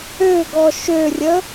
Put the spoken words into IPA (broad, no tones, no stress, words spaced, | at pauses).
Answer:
øɡɔ ʃørʲə